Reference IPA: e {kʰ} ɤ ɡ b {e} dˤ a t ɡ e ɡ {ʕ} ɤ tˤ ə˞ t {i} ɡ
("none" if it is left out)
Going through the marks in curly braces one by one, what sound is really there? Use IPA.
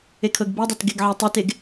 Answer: kʰ, e, ʕ, e

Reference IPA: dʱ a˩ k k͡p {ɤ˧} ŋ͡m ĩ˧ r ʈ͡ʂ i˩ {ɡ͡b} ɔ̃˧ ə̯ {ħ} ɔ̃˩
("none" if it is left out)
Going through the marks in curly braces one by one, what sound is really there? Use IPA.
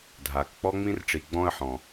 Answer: ɔ˧, ɡ͡b, ħ

